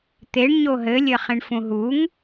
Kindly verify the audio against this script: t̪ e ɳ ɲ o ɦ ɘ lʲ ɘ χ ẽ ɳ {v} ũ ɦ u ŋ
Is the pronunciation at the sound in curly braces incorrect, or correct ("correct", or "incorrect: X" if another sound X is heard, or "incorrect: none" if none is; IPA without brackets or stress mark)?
incorrect: f